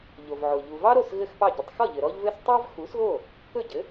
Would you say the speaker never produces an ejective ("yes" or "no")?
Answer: yes